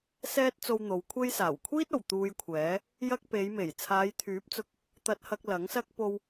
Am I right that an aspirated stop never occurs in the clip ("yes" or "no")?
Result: no